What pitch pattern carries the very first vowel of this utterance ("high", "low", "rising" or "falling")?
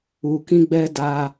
low